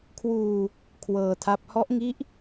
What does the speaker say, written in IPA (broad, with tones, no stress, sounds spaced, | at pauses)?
kʰ w uː˧ | kʰ w ɤː˧ tʰ a˦˥ p̚ h ɔ˦˥ ʔ ŋ i˦˥ ʔ